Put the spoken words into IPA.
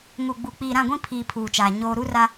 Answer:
ŋ u˨ ɡ͡b u˨ k͡p iː˨ ɾ ã˦˨ ɡʷ ĩ˦ pʰ iː˨ pʰ uː˨ t͡ʃ aː˨ ɲ oː˦ ɾ u˦ r a˦

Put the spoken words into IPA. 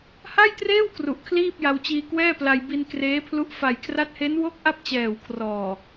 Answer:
h a˥˩ j t r eː˥˩ w k r u˨˩ ʔ kʰ l iː˥˩ p̚ j a˧ w t͡ɕ iː˧ k w ɛː˥˩ p l a˧ j b i˧ n k r eː˦˥ pʰ l u˦˥ ʔ f a˨˩ j kʰ r a˦˥ t̚ h e˦˥ n w o˥˩ k̚ ʔ a˥˩ p̚ t͡ɕ ɛː˨˩ w kʰ r ɔː˨˩

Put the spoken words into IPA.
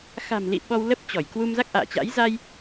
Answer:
x a̤˨˩ m l ḭ˧˨ ɓ ɔ˧ w l ə˦˥ p̚ t͡ɕ ɔ˧˩ j k w u˧ m z a˦˥ k̚ ʔ a̰ː˧˨ t͡ɕ a̰˧˥ j z a˧ j

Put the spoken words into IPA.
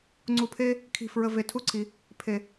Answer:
ŋ͡ǀ u˨ pʰ e˦ | kʰ i̤˨ f ɹ ə˨ v e˨ tʰ u˦ ǀʰ i˨ | pʰ e˨

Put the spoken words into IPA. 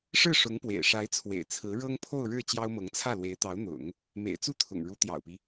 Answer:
ʂ ɻ̩˥˩ ʂ ʊ˧˥ ŋ p w ḛ˨˩ ɪ̯ ʂ a˧˥ ɪ̯ t͡sʰ w ḛ˨˩ ɪ̯ t͡sʰ ɹ̩˧˥ ɻ ɤ˥ ŋ pʰ o˥˧ ʊ̯ ɻ ɻ̩˥˩ t͡ɕ j ɑ˥ ʊ̯ m ɤ˧˥ ŋ t͡sʰ ä˥˩ l w e˧˥ ɪ̯ t̪ ɑ˧˥ ʊ̯ n̪ ʊ̰˨˩˦ ŋ | m ḛ˨˩ ɪ̯ t͡s u˥ t̪ʰ ʊ̰˨˩ ŋ ɻ u˧˥ t̪ j ɑ̰˨˩ ʊ̯ p i˦

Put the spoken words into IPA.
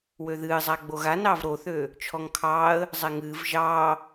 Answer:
w ø ð ɨː zˤ a ɡ͡b o ɣ a n ɑː v ɾ o θ øː | t͡ʃʰ ɔ ŋ kʰ ɑː ə̯ | zˤ ɛ ŋ ɨː v ʒ ɑː

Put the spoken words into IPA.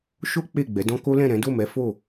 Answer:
ʃ o˦ k͡p e˦˨ ɡ͡b ɛ˨˦ d ɔ̃˦ k o˦ l ɛ̃˦˨ ɾ ɛ̃˨˦ d o˦˨ m ɛ˨˦ f o˦˨

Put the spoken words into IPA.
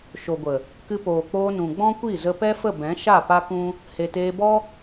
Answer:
ʃ o˨ ɡʷ ə˨ | k ɨ˧ p oː˨ k͡p oː˧ n ũ˨ ɡ͡b ɔ̃˦ kʷ i˦˨ z ə˧ p ɛ˦ f ə˦˨ b ɛ̃˨˦ ʃ a˦˨ p a˦ k ũ˦ | h e˨ t eː˧ b ɔ˦

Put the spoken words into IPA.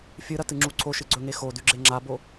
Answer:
fʲ ɨ ɾ ɐ t ɨ ŋ͡ǁ u ǀʰ o ʃ ɨ ɡ͡ǀ ɵ ŋ e x o d ʉ ɡ͡ǁ e ŋ͡ǁ a b o

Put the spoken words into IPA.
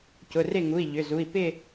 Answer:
c ʊ˩˧˩ r ɪ˥˨ ŋ u˩˧˩ i̯ ʎ ʏ˩˧˩ z u˩˧˩ i̯ p ɪ˥˨

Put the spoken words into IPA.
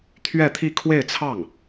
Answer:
t̪ʰ ɥ ɛ˥˧ t̪ʰ i˥˧ kʰ w e˥˧ ɪ̯ t͡sʰ ɑ˥˩ ŋ

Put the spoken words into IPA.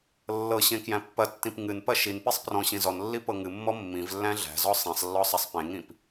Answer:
lː ɤ ɕ ẽ k j æ̃ pː ɐ tː ĩ p ŋ ɨ n p ɐ ʃ i n p i sˤ p r ɔ̃ ɕ ĩ z ɔ n lː i p ɤ ŋ ɨ mː ɔ mː ĩ v lː æ̃ ɮ æ̤ z ɔ sˤ ĩ sˤ lː ɔ sˤ ɐ sˤ p ẽ ŋ ĩ p

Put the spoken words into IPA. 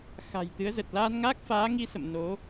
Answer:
x a̤˨˩ j t̪ ɨ˨˦ ə̯ z ə˨˩ t̚ l aː˧ n ŋ aː˦˥ k̚ f aː˨˦ ŋ i˧ s ə̰˧˨ m n o˨˦

